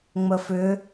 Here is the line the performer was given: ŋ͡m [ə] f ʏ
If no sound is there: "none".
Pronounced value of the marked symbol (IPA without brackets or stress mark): ə